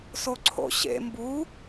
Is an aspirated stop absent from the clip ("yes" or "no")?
no